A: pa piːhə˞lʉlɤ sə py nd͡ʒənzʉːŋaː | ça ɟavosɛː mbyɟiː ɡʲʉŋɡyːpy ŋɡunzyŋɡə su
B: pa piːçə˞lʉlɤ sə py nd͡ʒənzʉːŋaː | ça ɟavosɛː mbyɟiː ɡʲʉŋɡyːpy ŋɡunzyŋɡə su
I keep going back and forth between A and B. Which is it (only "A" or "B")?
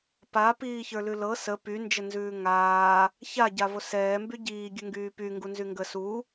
B